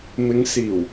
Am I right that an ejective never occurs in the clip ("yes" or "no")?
yes